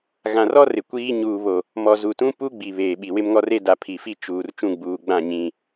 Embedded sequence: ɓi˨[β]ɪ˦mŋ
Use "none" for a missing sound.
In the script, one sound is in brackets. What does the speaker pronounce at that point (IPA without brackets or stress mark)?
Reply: w